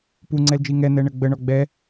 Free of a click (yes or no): no